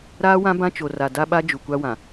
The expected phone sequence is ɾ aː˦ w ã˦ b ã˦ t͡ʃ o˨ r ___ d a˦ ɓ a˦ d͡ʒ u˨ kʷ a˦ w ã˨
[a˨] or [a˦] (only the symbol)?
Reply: a˨